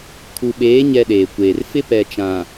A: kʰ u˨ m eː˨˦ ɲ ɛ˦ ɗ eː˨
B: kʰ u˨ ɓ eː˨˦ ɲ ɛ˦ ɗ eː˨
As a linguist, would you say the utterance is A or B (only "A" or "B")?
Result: B